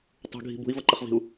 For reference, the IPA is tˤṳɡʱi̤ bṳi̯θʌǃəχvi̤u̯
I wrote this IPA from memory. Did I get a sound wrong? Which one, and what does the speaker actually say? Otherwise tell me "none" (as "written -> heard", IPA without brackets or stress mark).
θ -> v